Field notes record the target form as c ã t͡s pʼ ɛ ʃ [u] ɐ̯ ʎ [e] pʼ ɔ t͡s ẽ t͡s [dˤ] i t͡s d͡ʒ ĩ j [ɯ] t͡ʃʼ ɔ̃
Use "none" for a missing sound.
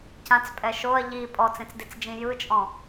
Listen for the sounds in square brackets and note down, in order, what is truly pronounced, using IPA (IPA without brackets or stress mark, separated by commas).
o, i, d, ɯ